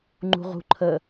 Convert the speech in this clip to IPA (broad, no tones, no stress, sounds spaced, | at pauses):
ŋ͡ǃ ṳ ʁ ṳ ǃʰ ə